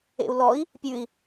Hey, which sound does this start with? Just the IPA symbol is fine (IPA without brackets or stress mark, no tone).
ḛ